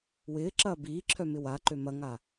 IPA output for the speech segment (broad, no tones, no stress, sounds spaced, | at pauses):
w ɪː ǁ ɐː b iː ǁʰ œ m ɪ w a ǃ ø m ɐ ŋ a